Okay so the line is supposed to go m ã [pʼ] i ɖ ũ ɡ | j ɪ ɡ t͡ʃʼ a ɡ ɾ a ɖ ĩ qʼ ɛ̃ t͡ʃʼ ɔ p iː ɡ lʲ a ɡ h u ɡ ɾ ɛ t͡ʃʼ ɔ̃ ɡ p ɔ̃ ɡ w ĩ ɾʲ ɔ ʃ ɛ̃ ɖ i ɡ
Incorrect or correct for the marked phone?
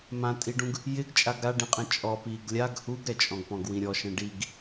incorrect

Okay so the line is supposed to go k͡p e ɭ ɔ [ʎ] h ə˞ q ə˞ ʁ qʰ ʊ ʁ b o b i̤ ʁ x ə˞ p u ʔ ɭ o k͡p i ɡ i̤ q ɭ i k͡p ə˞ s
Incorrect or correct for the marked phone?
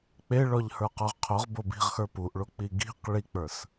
correct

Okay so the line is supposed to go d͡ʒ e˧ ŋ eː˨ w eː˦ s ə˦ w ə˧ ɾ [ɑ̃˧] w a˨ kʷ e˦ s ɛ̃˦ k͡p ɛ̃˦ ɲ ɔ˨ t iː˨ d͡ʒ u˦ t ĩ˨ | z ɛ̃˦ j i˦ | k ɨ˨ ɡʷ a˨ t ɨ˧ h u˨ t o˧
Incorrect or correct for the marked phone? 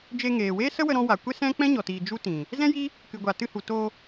incorrect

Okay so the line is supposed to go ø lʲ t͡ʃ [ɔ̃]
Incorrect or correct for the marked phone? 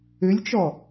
incorrect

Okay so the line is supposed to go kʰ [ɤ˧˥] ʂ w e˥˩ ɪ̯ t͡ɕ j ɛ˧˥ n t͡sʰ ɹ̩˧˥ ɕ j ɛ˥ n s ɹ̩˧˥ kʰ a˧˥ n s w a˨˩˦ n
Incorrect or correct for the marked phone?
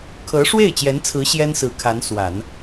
correct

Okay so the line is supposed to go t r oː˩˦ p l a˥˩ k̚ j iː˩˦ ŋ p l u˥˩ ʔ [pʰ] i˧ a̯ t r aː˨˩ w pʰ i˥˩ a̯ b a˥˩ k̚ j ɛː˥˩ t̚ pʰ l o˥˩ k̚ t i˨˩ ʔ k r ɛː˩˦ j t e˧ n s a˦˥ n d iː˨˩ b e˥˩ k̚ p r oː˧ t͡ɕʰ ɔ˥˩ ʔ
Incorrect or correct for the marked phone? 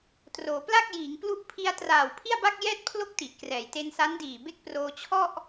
correct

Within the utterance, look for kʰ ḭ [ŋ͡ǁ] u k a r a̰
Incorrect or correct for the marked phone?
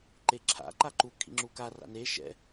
correct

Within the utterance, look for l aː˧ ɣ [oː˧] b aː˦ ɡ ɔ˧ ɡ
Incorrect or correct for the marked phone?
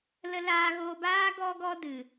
correct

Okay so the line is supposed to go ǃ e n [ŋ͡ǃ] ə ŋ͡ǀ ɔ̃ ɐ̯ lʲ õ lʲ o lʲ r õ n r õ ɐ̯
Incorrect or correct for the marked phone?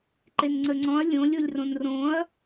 incorrect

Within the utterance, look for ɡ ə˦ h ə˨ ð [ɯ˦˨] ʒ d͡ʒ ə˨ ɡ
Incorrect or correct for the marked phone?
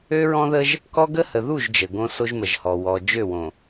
incorrect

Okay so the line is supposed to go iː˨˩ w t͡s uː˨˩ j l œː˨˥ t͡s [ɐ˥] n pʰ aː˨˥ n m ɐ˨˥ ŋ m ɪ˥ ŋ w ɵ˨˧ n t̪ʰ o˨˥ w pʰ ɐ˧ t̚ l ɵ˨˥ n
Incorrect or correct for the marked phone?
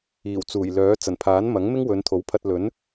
incorrect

